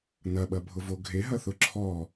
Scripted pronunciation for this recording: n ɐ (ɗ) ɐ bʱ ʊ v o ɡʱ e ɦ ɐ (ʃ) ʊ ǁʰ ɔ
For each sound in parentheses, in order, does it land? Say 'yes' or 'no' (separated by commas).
no, no